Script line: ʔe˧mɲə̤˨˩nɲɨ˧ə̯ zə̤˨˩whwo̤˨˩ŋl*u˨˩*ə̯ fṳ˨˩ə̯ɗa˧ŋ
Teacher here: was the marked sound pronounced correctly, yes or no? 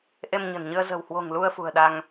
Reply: no